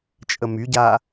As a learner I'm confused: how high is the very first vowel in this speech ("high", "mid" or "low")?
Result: mid